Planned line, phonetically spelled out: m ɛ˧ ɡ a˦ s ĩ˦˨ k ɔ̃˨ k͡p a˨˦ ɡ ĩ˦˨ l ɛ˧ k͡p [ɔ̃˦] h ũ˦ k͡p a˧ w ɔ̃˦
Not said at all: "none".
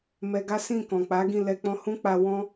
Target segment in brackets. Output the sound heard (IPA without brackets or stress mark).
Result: ɔ̃˧